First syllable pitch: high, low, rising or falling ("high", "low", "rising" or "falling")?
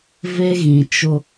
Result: high